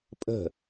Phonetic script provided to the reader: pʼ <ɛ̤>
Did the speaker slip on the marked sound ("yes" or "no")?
yes